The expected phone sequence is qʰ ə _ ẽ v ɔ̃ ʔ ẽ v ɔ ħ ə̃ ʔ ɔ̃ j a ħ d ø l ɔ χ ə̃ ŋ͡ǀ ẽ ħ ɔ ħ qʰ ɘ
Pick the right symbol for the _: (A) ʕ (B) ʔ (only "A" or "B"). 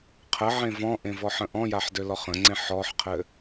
A